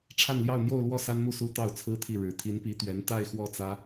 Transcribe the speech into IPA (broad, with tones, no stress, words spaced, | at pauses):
ʈ͡ʂʰa˥˧nljɑ˥˧ʊ̯n̪jo˥˧ʊ̯lwɔ˥˩ sa˥nmu˥˩su˥ t̪ɑ˥˩ʊ̯t͡sʰɹ̩˥t̪ʰi˥˩ ɻɻ̩˧˥ t̪ʰi˧˥npi˧˥t̪ɥɛ˧˥n t̪a˥˧ɪ̯xwɔ˥˩t͡sä˥